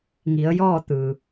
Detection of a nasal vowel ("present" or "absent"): absent